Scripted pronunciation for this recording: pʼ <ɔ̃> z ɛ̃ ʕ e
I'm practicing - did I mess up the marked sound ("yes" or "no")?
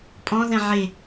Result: no